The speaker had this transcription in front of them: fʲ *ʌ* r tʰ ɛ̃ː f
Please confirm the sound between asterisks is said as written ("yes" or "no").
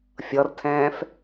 yes